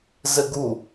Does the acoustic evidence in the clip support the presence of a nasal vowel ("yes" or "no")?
no